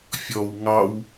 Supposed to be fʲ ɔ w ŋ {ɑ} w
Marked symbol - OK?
yes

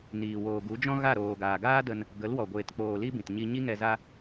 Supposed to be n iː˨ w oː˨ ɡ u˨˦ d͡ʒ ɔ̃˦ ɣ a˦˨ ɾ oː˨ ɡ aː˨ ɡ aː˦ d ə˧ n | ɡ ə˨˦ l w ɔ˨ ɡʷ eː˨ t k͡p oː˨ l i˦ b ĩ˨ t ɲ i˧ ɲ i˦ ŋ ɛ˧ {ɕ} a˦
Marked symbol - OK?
no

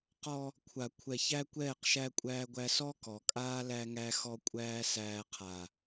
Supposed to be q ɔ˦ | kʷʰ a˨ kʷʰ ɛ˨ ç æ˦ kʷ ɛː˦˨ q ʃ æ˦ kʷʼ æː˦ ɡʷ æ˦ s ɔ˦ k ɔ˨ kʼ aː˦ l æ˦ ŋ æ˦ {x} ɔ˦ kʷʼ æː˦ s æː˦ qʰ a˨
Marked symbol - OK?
yes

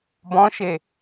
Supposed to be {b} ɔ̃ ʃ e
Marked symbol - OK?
yes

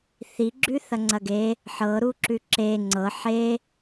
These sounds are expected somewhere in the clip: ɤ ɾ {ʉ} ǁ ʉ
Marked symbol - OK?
no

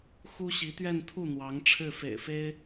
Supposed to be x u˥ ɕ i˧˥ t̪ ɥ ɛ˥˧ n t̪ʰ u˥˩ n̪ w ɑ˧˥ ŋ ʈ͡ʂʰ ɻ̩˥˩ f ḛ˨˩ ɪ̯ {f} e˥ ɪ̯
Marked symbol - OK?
yes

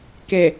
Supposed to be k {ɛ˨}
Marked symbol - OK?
yes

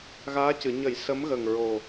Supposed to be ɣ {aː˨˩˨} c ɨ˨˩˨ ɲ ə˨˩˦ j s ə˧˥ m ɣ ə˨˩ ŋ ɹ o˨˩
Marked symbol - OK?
no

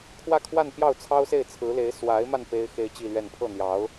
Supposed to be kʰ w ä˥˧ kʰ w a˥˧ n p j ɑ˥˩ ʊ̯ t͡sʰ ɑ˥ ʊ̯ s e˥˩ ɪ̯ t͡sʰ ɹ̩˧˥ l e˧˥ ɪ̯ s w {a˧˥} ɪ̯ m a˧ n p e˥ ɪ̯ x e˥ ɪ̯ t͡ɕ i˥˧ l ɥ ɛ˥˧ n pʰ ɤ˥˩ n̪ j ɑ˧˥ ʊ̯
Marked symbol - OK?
yes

